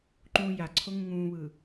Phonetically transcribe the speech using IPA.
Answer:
ǃũːja ǀʰoŋũŋũːβɯː

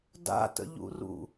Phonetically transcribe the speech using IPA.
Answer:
da̰tə̰ʎṵrṵ

